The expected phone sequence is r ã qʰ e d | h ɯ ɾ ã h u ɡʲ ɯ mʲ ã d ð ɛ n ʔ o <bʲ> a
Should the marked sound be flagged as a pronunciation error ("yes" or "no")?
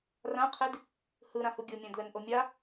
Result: yes